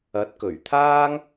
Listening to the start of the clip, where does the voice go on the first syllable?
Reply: rising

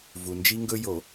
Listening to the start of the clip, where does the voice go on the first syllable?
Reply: low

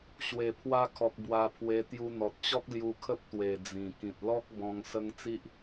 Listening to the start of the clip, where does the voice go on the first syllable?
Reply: low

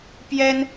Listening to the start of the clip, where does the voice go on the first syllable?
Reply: high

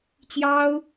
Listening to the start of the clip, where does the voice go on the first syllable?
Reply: high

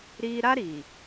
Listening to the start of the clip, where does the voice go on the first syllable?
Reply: high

